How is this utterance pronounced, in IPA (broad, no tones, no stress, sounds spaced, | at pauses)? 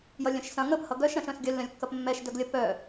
j ʌ lʲ œ̃ ʃ s ɐ̃ ŋ ə p h ʌ ɡ œ ʃ ɾ ɐ̃ ʃ œ̃ s ɡʲ œ lː œ̃ lʲ kː ɐ p mː ɛ ʃ d œ ɡ lʲ ɐ p œ